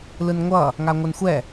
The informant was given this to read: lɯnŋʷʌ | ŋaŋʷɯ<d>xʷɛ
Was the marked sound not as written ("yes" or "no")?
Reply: yes